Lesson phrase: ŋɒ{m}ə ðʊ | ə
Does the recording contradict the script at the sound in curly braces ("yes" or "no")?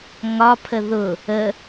yes